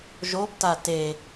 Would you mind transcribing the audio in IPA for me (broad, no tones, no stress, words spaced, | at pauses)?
ʒob tate